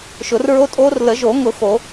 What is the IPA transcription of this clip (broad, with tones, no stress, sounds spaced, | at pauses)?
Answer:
ʃ ʊ˨˩˦ r ɹ o˦˥ tʼ oː˦˥ r l ə˨˩˦ ʒ o˨˩˦ ŋ ʊ˨˩˦ x o˨˩˦